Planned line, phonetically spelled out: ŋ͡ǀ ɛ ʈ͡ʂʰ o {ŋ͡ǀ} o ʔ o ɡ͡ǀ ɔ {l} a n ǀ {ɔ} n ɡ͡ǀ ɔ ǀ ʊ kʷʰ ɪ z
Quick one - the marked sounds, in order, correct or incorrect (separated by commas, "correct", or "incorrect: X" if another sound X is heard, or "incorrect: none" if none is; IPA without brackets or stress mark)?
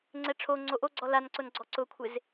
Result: correct, correct, incorrect: ʊ